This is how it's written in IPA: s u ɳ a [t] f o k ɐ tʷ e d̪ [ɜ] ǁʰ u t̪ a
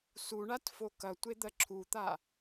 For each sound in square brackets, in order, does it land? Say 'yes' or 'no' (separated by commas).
yes, yes